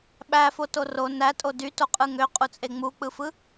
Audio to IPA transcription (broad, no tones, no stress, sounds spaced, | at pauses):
ɓ æ f o t o r o n æ tʼ o d y t o qʼ ɯ ŋ ø qʼ u t͡sʼ e ŋ͡m u k͡p ɯ f ɯ